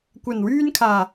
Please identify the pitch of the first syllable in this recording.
low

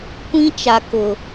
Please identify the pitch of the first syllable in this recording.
high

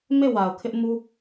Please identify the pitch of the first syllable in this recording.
falling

